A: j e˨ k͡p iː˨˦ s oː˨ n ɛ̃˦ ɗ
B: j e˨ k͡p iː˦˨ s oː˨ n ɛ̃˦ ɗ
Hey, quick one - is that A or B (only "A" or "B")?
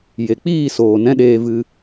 B